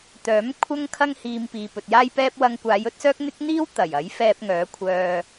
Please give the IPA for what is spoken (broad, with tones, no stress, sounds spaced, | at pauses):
t̪ œː˨˥ m kʷʰ ɐ˥ ŋ kʰ ɐ˥ ŋ h iː˧ m p iː˨ p ɵ˨ t̚ j aː˥ j p ɛː˥ p̚ w ɐ˧ ŋ kʷ aː˨˧ j ɵ˨˥ t̚ s œː˥ k̚ n̪ ɪ˥ k̚ n̪ iː˥ w t̪ ɐ˨˩ j ɐ˨˥ j f ɛː˧ p̚ ŋ œː˨˥ kʷʰ œː˧